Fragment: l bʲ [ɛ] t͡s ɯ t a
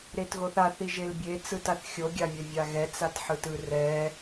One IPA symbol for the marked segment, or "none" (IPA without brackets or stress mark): e